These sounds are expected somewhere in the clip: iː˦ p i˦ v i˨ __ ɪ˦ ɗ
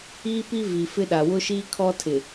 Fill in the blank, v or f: f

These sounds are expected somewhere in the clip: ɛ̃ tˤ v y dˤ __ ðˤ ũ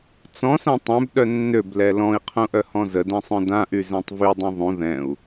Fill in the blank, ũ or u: ũ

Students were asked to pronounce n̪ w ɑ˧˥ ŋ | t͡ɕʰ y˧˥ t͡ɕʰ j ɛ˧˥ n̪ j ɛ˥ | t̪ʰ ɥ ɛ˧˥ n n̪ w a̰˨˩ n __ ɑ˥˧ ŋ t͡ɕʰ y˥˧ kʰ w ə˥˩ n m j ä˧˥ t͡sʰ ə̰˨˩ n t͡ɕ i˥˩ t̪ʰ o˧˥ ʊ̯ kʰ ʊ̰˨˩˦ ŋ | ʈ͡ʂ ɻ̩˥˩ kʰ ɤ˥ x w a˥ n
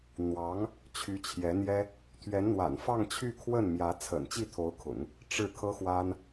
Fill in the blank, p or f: f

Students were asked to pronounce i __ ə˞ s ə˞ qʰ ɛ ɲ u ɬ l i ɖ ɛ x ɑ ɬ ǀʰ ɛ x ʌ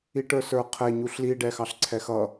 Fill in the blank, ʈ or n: ʈ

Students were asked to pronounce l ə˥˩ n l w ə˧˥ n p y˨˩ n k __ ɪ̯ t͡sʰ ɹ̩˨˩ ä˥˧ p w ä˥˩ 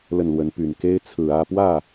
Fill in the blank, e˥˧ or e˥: e˥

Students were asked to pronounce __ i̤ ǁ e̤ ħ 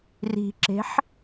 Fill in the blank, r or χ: r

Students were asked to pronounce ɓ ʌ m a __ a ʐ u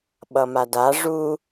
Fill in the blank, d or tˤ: d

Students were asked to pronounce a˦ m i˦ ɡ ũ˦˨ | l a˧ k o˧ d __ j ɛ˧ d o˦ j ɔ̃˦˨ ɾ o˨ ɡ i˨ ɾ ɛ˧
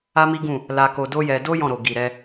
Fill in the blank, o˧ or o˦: o˦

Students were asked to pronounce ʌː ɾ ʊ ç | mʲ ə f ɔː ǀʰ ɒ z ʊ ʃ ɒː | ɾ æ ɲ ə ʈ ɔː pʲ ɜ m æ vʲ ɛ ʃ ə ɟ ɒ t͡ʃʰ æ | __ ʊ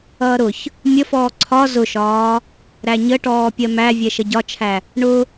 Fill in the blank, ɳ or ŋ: ɳ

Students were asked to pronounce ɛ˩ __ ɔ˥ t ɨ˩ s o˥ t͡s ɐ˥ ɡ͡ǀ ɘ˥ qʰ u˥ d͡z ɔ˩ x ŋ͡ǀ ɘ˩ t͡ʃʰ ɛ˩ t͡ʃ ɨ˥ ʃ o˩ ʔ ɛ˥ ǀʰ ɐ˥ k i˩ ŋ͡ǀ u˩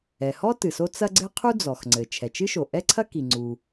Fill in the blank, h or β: h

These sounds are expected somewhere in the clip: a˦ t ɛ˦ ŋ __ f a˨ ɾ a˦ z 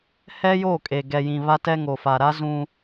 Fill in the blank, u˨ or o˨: o˨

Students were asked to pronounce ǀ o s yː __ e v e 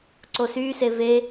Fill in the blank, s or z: s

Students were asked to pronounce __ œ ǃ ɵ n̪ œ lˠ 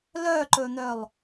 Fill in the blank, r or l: l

